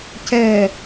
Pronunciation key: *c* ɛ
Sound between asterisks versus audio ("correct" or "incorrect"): correct